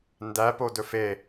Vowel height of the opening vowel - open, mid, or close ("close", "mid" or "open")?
open